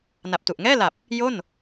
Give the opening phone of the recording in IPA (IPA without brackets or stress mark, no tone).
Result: n